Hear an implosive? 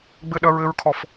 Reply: yes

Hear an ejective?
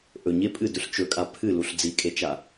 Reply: yes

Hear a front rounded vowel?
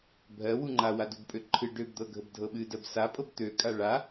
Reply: yes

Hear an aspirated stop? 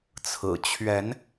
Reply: yes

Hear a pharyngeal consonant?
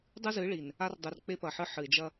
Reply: yes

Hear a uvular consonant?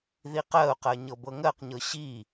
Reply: yes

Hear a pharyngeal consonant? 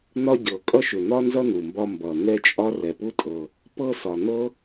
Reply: no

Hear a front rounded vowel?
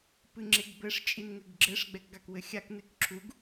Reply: no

